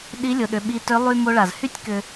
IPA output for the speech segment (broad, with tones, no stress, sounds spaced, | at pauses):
ɗ i˧˥ lʲ ʊ˩˧ ɗ ʏ˩˧ ɓ i˧ t ʏ˧˥ lˠ y˥ m o˧ ɭ a˩ z h y˥ tʲ k ʏ˧